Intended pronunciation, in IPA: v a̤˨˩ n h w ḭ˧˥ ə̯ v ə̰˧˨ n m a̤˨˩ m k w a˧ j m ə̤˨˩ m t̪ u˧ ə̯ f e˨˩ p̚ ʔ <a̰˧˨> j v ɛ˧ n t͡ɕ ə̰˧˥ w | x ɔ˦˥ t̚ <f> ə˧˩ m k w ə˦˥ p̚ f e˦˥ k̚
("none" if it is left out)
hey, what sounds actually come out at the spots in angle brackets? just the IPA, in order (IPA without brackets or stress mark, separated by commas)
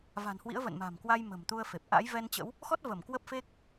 a̰˧˥, v